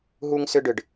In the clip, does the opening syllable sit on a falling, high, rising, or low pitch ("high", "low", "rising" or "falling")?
high